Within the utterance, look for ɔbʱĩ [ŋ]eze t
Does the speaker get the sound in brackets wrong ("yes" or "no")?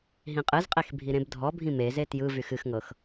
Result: yes